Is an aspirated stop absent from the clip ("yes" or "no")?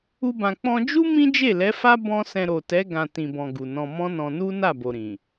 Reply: yes